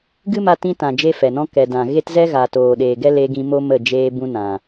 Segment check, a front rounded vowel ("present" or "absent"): absent